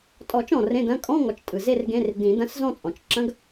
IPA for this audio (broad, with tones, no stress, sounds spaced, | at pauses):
tʼ ɔ˨˩˦ t͡ʃ ɔ̃˩ r ẽ˧˥˧ d ɐ̃˧˥˧ kʼ ɔ̃˧˥˧ ŋ ɔ˩ t͡ʃ tʼ ɯ˩ z e˥˧ r ɡ ẽ˧˥˧ r d ĩ˨˩˦ d ɐ̃˧˥˧ s z ɔ̃˥˧ t͡sʼ ɔ̃˩ t͡ʃ ǁ ɐ̃˧˥˧ ɡ